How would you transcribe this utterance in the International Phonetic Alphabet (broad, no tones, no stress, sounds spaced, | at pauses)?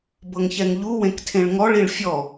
b ɤ ŋ ç ɛ ŋ ʎ u w ẽ k tʰ ẽ ɭ ŋ ɔ ɭ i ɭ fʲ ɔ